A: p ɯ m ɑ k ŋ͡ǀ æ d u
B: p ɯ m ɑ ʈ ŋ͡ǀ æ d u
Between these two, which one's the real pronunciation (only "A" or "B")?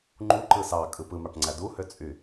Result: B